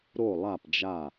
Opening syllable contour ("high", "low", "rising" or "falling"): falling